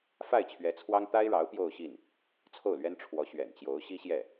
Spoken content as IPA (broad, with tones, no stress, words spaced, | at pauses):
fa˥˩ɪ̯t͡ɕʰɥɛ˧˥t͡sʰwɑ˥ŋ t̪a˥ɪ̯ɻɑ˧˥ʊ̯ pjo˥˧ʊ̯ɕi˥˩n | t͡sʰo˥˩ʊ̯lɥɛ˥n ʈ͡ʂʰwɔ˧˥ ɕɥɛ̰˨˩nt͡ɕjo˧˥ʊ̯ ɕi˥ɕjɛ˥˩